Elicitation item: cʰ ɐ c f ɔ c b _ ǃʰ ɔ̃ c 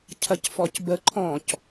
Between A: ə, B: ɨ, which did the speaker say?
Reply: A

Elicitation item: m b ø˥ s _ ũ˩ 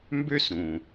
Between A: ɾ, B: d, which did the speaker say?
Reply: A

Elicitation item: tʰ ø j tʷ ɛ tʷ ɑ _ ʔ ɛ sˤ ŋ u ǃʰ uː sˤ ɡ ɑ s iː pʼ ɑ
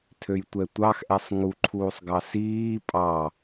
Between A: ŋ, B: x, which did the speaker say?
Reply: B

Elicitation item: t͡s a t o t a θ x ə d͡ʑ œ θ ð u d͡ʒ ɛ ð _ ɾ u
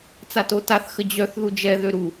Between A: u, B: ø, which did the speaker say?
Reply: B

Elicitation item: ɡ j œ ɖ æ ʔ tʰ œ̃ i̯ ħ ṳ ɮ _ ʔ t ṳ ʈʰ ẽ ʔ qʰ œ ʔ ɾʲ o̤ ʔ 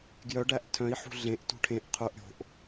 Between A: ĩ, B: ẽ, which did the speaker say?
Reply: B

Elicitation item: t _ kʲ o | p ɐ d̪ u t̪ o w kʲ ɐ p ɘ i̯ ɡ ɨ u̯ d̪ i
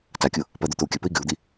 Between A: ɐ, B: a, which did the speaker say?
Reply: B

